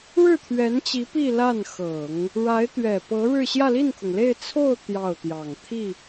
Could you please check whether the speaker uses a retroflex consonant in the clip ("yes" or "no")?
yes